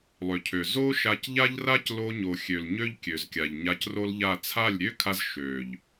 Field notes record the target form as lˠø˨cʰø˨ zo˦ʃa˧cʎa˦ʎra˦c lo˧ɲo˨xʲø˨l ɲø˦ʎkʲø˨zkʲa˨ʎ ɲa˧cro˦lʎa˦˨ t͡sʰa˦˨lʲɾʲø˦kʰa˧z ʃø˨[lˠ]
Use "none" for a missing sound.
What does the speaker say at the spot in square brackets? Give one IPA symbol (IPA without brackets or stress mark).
ʎ